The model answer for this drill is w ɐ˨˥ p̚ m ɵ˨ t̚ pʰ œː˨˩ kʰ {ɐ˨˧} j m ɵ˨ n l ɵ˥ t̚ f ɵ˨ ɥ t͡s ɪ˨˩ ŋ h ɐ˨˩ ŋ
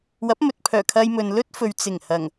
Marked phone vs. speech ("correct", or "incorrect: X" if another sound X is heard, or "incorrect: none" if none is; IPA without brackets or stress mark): incorrect: ɐ˧